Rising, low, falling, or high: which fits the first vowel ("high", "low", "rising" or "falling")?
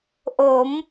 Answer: rising